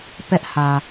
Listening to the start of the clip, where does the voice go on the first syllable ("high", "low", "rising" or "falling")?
high